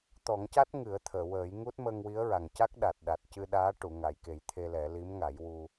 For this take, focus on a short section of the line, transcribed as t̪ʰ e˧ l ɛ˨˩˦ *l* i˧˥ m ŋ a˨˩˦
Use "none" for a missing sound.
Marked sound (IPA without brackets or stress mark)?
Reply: l